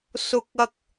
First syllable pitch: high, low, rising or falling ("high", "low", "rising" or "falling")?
high